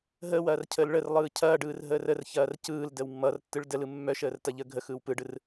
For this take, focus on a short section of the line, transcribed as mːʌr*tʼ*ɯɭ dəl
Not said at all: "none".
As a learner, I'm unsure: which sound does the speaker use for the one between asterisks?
tː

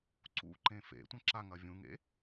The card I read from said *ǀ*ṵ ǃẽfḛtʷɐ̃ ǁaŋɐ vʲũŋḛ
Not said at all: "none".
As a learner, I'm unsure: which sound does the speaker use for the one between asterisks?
ǀ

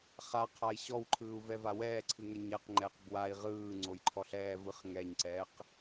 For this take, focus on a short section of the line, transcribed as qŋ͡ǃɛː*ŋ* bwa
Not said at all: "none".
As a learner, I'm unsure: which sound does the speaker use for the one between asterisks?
q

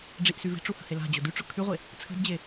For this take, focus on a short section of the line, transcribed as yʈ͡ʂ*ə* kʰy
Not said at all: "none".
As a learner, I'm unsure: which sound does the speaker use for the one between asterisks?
ʊ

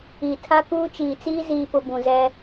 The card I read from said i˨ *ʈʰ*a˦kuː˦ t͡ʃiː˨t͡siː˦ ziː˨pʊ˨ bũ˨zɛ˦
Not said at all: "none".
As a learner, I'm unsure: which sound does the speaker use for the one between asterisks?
tʰ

